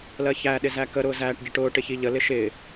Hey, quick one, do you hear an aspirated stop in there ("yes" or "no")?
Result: no